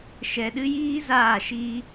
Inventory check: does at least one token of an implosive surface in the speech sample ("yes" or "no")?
yes